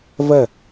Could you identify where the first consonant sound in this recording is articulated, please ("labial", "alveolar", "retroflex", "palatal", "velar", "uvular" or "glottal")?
labial